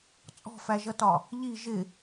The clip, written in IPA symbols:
t͡sʼ ɔ̤ f æ ʒ ʌ t ɒ | ʎ i ʒ ɪ

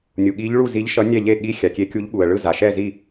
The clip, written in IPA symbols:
nʲ u˩ ɠ i˧˥ ʎ ɭ u˥˨ z i˧˥ ʎ ʃ ʌ˧˥ nʲ ɛ˥˨ ʎ e˥˨ ɠ i˧˥ xʲ a˩ kʲ e˧˥ kʲ u˧˥ ʎ ɠ u˩ ə̯ ɭ ɯ˥˨ z a˩ ʃ ɛ˥˨ z i˥˨

